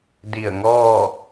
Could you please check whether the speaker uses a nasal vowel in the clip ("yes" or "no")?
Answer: no